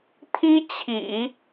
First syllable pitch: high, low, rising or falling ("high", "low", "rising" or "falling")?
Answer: high